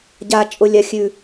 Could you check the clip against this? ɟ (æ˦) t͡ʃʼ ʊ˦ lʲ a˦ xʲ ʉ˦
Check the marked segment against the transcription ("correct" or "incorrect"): incorrect